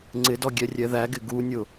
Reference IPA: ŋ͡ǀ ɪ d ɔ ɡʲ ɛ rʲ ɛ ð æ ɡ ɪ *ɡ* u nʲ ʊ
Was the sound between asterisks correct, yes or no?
yes